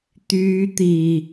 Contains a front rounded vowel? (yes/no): yes